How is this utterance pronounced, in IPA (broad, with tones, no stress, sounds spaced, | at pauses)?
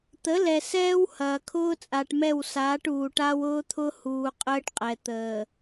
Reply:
t̪ ə˨˦ l ɛ˨ s ɛː˦ w h ɐː˨ kʰ ʊː˦ t͡sʼ a˨ ʈ m ɛ˦˨ w s aː˨˦ ʈ uː˨ ʈ a˦ w ʊː˦ t̪ʰ ʊ˦ h uː˨ qʼ əː˦ ʈ qʼ ɛ˨ t̪ əː˨